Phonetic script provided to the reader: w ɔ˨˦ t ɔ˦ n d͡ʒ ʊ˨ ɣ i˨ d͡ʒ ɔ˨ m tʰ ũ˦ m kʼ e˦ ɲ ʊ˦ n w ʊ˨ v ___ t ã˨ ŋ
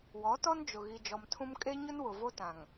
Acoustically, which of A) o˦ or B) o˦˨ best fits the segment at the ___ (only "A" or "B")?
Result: A